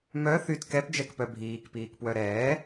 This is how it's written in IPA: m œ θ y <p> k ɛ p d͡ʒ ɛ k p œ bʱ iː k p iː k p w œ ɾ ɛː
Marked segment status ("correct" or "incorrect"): incorrect